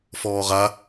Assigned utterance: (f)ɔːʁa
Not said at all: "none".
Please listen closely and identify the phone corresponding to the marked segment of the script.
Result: f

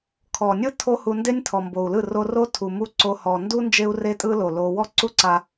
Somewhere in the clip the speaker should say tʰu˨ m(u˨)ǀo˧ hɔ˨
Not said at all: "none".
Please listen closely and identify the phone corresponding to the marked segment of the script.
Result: u˦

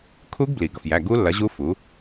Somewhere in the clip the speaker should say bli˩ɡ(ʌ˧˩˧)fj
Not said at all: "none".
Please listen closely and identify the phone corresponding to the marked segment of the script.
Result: ʌ˩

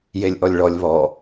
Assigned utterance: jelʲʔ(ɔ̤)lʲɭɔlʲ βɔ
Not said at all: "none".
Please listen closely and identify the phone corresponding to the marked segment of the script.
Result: ɔ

